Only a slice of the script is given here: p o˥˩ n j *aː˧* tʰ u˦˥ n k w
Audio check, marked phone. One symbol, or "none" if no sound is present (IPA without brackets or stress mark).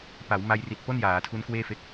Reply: aː˩˦